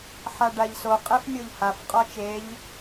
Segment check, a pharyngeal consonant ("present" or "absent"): present